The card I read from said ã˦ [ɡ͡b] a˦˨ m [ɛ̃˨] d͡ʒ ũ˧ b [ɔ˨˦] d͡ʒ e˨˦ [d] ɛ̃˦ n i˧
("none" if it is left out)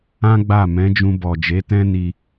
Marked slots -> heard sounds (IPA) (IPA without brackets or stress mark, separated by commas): ɡ͡b, ɛ̃˨˦, ɔ˨, t